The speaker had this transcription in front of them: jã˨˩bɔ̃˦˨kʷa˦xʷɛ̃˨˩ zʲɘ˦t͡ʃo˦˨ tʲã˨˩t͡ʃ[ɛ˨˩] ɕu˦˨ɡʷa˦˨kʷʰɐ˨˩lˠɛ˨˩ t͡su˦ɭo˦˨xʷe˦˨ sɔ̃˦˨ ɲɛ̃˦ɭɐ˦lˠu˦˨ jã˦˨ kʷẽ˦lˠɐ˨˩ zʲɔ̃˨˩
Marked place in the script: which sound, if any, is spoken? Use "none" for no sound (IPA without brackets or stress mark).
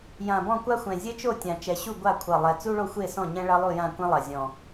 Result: ɛ˨˩